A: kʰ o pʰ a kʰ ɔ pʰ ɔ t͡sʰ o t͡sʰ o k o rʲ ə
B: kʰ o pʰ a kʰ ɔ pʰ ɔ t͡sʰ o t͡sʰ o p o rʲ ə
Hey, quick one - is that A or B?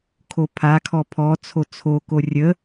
A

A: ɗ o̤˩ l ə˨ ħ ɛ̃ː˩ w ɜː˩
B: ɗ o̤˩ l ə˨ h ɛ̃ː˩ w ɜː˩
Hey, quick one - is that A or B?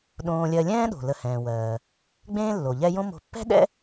B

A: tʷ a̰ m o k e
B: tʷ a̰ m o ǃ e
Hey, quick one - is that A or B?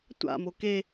A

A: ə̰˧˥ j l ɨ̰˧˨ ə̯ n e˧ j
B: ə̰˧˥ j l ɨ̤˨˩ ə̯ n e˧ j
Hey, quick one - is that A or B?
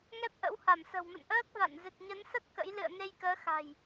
A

